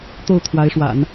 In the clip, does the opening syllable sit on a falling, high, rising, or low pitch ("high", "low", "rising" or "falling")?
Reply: falling